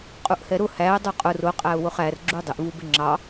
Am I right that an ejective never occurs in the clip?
no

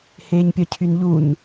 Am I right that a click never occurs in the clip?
yes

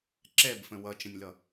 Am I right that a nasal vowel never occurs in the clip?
no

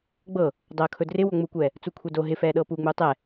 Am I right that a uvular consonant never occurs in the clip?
yes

